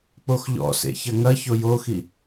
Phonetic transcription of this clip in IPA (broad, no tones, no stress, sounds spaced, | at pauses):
k͡p o x ʎ ɔ̰ s ḛ ç ɐ ŋ ɐ ç o j o x i